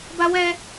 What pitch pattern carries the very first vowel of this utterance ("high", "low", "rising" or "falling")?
high